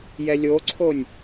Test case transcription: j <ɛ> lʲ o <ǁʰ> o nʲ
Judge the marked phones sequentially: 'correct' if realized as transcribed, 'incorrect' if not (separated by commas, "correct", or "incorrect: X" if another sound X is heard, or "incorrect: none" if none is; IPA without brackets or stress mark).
correct, incorrect: ǀʰ